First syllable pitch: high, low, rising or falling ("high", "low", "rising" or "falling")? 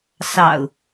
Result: low